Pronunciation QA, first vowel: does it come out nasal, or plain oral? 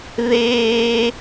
oral